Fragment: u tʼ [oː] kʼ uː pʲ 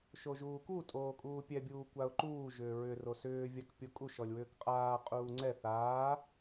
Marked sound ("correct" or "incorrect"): correct